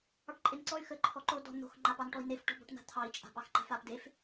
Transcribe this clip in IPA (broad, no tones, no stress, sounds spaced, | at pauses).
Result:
ɑ ʈ ǃʼ e n ǀ ɔ y̯ x ə ǃʰ ɔ ǃ o d ɔ̤ n̪ o̤ x ŋ͡ǃ a p ɑ n ʈ ɔ i̯ n e f ʈ ɔ̤ b ɔ̤ ʈ n̪ a̤ t̪ʰ ɑ i̯ t͡ʃʼ a̤ p ɑ x ǃ a̤ f a p d e f